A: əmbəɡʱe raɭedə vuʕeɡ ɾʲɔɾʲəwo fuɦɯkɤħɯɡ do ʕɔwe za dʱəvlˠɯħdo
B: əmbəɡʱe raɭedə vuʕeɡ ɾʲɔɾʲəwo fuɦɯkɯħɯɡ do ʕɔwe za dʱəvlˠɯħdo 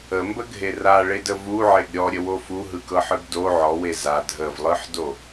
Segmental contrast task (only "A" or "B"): A